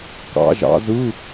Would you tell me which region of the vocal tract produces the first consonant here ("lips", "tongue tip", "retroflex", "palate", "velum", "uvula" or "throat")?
velum